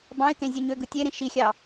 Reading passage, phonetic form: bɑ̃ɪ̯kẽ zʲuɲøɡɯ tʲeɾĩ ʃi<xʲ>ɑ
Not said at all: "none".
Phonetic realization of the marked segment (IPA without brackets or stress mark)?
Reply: xʲ